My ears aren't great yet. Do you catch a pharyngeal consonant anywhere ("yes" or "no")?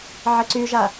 yes